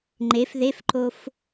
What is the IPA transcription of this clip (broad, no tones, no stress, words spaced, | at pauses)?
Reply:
ŋ͡ǃef ðefǃof